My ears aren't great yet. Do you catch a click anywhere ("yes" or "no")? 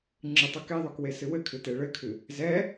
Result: yes